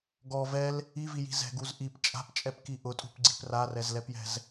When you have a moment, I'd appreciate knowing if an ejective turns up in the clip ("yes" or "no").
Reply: yes